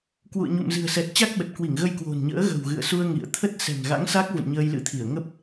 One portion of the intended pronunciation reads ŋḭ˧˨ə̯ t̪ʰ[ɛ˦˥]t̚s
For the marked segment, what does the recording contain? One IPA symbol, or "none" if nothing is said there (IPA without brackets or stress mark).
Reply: ə˦˥